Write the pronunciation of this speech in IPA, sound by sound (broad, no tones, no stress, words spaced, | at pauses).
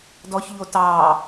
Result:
dɔçʎo tɑː